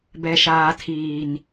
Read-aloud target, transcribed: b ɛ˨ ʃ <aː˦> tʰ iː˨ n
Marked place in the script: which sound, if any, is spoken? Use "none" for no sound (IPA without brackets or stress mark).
aː˨